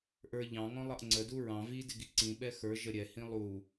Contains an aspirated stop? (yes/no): no